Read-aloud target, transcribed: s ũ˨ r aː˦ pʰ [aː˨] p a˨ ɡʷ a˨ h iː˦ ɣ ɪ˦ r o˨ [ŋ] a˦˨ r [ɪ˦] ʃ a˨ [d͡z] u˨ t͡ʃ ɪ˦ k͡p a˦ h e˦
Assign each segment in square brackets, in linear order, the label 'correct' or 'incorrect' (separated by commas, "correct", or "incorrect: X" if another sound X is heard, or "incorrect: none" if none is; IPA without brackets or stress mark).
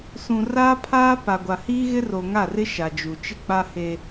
incorrect: aː˦, correct, correct, incorrect: d͡ʒ